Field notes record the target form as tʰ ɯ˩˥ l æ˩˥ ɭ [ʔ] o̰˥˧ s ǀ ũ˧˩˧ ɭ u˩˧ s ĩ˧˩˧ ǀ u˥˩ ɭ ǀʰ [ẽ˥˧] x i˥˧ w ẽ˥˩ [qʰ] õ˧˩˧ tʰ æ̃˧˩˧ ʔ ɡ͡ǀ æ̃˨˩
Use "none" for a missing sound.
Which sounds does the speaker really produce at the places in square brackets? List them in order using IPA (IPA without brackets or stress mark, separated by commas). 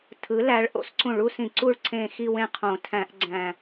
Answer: ʔ, ẽ˥˧, qʰ